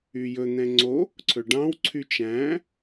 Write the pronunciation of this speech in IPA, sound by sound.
y j ɵ n̪ ɛ̃ ŋ͡ǀ o | ǀʰ ɵ ɖ ɑ̃ w ǀʰ y t͡ʃ æ̃

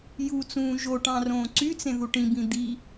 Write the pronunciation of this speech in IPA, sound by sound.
j u t͡s ũː ʒ o ʈ ɑ̃ r õː ǀ y t͡s ẽ ð u ʈ ĩ b ĩ d̪ i

